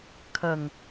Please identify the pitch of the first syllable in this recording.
low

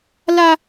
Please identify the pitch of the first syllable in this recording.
high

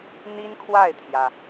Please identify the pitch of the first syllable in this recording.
high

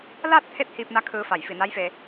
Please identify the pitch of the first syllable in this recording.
falling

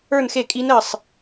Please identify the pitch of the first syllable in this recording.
falling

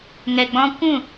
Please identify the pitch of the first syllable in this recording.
low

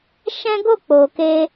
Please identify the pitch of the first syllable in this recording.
high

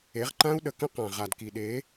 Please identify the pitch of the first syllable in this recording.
rising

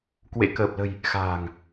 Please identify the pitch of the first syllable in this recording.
rising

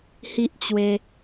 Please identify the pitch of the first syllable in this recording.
high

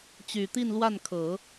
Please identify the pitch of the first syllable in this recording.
low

